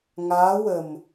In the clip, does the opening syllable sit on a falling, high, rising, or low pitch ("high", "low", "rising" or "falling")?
rising